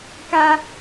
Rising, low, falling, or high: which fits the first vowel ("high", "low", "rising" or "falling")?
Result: high